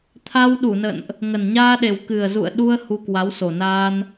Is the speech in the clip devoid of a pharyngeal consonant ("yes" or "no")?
yes